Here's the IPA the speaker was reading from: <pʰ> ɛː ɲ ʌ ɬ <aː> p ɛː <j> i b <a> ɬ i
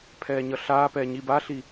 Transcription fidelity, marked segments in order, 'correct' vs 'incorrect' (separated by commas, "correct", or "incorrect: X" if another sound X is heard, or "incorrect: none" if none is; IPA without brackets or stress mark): correct, correct, incorrect: ɲ, correct